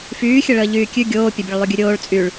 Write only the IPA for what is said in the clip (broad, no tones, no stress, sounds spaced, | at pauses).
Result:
f yː xʲ ə ɭ əː ʎ yː kʲ ʉ ɡʲ oː pʲ ə bʲ ə ɭ lˠ ʉ ɡʲ ʉ ɾʲ oː ɭ t͡sʼ y ɭ